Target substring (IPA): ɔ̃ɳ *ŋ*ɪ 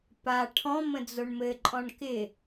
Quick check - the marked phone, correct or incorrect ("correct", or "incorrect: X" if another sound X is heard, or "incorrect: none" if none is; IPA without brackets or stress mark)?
incorrect: k